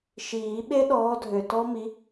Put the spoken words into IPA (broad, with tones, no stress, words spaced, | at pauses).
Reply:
ʃiː˨˩˦ɓe˦˥ɗɔː˨˦ dʱø˨tɔ˦˥ mi˨˦